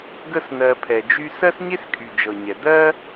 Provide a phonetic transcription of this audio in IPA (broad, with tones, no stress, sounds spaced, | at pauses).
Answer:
ɡ ə˦ s n̪ ɜ˧ pʰ ɛ˨ d͡ʒ y˦ s ɜ˦ s ɲ e˦ s kʼ y˨ d͡ʒ ɤ˨ ɲ ɛ˨ d̪ ɜ˦